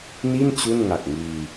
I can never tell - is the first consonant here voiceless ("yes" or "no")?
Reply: no